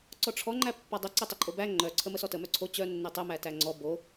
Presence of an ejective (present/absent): present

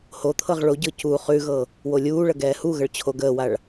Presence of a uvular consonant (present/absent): present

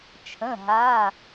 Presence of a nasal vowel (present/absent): present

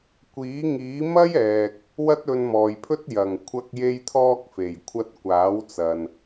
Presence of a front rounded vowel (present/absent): absent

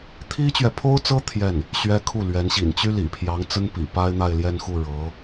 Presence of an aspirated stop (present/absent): present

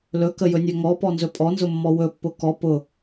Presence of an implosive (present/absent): absent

